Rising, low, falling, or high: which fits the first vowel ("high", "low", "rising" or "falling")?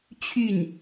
falling